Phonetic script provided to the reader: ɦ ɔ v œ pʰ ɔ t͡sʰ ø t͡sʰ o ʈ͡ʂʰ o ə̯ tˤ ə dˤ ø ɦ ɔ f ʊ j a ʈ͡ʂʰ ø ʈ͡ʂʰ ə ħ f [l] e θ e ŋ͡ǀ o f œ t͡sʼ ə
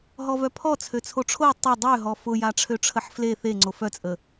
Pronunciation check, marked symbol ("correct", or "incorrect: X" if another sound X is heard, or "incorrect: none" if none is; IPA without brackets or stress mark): correct